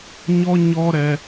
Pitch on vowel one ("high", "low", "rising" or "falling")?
high